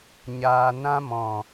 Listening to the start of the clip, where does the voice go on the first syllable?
low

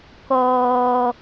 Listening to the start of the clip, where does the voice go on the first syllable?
low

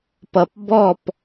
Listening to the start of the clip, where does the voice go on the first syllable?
low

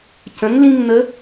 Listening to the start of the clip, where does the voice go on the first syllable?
rising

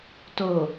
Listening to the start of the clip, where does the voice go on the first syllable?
low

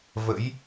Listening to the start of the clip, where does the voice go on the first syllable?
rising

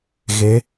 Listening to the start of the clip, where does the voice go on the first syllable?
rising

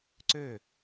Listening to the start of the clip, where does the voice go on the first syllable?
falling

